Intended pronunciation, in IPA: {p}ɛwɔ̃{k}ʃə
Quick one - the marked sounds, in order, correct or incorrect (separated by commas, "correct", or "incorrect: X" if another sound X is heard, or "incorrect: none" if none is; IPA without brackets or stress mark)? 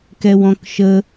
incorrect: k, correct